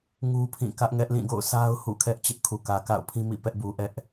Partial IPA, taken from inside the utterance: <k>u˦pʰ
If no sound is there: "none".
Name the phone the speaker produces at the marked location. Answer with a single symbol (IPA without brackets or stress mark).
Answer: ŋ